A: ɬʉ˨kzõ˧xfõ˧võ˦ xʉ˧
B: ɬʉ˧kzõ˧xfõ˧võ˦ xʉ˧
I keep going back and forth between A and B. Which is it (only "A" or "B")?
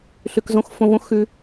A